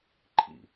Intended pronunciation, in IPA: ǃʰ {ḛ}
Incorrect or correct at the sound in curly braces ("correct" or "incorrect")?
incorrect